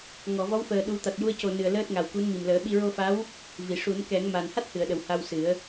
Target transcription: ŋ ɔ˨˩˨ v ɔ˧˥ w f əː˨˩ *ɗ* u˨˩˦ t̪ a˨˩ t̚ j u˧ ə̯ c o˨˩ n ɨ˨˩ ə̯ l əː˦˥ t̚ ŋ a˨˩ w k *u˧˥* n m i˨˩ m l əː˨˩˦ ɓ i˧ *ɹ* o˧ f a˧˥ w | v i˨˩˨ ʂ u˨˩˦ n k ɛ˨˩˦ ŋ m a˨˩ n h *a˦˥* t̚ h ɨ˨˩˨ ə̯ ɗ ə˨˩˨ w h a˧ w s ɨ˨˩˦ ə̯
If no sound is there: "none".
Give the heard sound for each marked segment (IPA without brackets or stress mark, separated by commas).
ɗ, u˧˥, ɹ, a˦˥